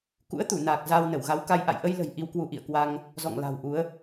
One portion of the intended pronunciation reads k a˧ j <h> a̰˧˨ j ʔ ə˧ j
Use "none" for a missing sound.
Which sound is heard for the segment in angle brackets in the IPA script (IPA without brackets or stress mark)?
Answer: ʔ